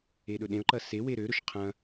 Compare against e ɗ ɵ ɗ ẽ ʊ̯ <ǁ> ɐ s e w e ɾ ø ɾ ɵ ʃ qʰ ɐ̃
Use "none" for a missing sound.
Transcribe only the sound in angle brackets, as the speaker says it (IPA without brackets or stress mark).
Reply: ǃ